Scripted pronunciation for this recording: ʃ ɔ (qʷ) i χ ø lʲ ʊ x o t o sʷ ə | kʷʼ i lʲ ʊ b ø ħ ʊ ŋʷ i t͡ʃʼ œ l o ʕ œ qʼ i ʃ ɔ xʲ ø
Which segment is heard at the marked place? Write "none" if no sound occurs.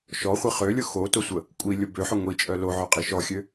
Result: χʷ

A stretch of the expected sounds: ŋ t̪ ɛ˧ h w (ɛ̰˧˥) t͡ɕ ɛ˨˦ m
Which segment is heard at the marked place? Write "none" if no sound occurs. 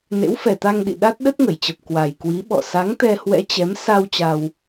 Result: ɛ̰˧˥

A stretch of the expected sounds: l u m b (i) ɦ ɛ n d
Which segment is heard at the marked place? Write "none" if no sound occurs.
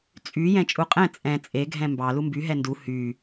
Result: y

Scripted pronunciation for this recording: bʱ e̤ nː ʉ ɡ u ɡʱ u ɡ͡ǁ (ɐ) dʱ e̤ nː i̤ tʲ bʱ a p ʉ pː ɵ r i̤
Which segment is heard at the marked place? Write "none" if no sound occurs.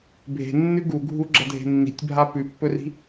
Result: ɐ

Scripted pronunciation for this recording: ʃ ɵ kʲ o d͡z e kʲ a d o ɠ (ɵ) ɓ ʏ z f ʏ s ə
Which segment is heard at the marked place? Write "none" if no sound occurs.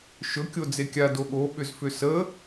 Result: o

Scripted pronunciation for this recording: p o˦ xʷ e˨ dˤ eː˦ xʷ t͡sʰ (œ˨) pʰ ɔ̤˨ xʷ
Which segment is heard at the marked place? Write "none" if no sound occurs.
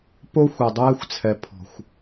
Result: ɛ˨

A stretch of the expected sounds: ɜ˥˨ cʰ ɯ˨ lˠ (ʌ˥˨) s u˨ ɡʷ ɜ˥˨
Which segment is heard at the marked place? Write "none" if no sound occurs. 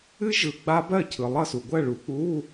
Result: ʌ˥˨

